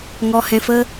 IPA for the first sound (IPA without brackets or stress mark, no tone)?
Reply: ŋ